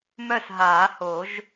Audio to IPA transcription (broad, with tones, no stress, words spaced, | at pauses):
mœ˥˨sɦaː˨˩˦ho˨˩˦ʒ